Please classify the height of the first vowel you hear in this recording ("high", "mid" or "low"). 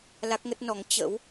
low